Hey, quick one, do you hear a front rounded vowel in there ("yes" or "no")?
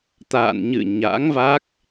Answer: no